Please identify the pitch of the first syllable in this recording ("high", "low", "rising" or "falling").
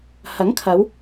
rising